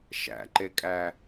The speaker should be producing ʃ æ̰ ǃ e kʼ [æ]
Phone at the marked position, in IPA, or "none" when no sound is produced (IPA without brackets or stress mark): æ